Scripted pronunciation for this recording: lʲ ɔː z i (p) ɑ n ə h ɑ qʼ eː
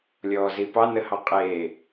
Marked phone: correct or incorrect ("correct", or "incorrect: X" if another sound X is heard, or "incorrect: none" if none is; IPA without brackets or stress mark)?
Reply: correct